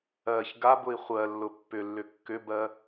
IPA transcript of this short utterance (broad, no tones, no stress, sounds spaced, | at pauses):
ɜ ç ɡ a b ʊ i̯ χʷ ɜ lː ʊ pː ʏ lː ʏ kː ʏ b ɜ